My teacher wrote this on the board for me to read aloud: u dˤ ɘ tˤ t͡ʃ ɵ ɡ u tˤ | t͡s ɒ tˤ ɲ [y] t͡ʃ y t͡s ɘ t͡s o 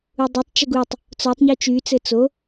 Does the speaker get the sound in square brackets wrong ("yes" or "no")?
no